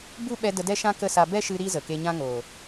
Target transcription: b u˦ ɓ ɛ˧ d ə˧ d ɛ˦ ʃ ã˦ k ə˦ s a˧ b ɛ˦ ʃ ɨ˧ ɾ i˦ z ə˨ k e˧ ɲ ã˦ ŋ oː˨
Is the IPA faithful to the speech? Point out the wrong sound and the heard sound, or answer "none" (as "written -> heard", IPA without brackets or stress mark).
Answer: none